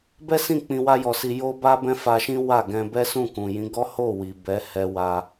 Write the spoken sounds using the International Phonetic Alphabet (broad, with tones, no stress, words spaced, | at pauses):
bɛ˦sĩ˦˨ k͡pĩ˧wa˦jɔ˧ si˧jo˦ba˦ bɛ̃˦fa˧ʃĩ˦ wa˦˨ɡɛ̃˧ bɛ˦sũ˦˨kũ˨jĩ˨˦ ɡɔ˦ho˦˨ wi˨bɛ˨˦ hɛ˧wa˧